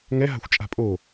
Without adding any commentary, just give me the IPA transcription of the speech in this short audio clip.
ŋɛ ɦa̤xʷt͡ʃʼa̤pʼo

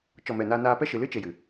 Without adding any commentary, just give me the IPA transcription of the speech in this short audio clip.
t͡ʃɔ˦˨mɛ˦˨ naː˦naː˦ pɛ˦ʃɨ˨lɨ˦t͡ʃe˨ jɨ˨

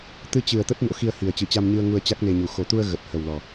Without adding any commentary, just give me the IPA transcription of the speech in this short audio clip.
t̪ɨ˧t͡ɕɨ˨˩ə̯t̪ə˦˥t̚ no̰˧˥xi˧ə̯hi˨˩ə̯ t͡ɕɨ˧˩t͡ɕa˧mɲɨ˧ə̯ ŋu˧ə̯t͡ɕa˦˥k̚ne˧ɲu˨˩ xo˨˩t̪u˧ə̯ ɣə˨˩t̚hə˨˩wlɔ˨˩

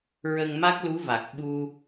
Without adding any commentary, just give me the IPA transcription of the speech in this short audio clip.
ɹə˧ŋma˦˥k̚lu˧˥va˨˩k̚ ɓu˧

